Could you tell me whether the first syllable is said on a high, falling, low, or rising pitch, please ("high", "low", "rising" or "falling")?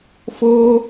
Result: high